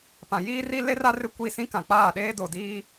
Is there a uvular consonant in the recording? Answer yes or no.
no